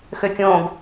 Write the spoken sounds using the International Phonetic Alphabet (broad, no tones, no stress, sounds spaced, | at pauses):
x ø kʲ õ ɡ